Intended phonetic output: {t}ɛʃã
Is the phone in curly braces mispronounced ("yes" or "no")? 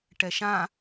yes